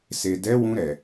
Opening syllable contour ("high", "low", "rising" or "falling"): low